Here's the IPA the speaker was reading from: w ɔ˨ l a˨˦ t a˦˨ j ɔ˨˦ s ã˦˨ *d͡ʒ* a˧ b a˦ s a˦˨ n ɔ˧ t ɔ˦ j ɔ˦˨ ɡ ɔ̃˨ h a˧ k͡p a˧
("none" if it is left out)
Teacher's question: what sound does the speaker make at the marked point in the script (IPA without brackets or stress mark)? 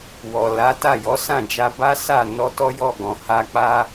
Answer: d͡ʒ